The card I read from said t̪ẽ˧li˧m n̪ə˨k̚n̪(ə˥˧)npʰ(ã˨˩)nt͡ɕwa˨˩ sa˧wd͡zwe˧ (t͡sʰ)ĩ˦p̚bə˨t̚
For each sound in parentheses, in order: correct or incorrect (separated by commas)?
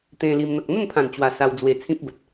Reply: correct, correct, correct